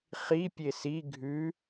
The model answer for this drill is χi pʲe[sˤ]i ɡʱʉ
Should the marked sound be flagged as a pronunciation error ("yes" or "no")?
yes